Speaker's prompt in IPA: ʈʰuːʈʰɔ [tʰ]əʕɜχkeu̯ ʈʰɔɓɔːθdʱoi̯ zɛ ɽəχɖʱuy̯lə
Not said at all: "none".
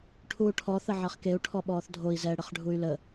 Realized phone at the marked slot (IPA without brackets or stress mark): θ